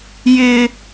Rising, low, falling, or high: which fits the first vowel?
high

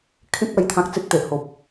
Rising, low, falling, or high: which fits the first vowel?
high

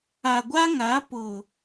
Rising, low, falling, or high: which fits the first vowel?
low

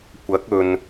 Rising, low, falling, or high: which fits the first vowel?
rising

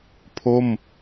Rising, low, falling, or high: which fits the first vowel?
falling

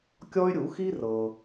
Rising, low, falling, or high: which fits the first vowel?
high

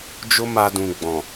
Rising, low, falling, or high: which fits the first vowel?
high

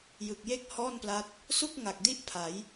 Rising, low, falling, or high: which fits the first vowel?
low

